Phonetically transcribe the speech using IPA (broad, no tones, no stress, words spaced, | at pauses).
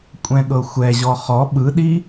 kʷʼɛ̃ɠɤxʷɛʑɔ χɔ ɓɯɗi